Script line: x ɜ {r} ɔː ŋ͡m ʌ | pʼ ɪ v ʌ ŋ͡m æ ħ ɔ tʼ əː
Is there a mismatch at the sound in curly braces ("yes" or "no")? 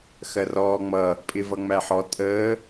no